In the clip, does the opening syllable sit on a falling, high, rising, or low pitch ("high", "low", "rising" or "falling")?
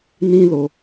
high